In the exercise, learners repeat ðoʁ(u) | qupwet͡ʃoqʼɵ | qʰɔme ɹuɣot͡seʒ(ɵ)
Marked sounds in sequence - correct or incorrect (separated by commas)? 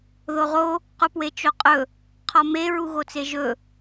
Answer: incorrect, correct